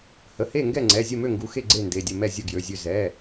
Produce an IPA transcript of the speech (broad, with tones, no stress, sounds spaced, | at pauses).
h ə˩˧˩ h e˥˨ ŋ ɡ ɛ˥˨ ŋ͡ǀ ɛ˩˧˩ zʲ ə˥˨ m ø˥˨ ŋ ɡ u˩˧˩ x e˥˨ ɡ͡ǀ e˥˨ n d e˩˧˩ dʲ ə˥˨ m ɛ˥˨ zʲ ə˥˨ ɡ j ø˩˧˩ zʲ ø˥˨ z ɛ˩˧˩